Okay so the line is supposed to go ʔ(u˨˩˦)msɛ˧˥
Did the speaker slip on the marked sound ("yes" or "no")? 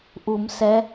no